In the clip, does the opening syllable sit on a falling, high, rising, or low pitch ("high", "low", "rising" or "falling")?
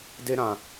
high